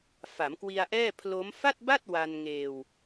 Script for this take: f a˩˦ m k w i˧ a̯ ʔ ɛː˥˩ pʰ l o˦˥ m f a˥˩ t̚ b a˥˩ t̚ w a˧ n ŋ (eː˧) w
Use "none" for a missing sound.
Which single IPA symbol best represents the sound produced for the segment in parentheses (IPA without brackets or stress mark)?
eː˧